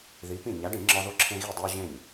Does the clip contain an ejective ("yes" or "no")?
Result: no